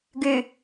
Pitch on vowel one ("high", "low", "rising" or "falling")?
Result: low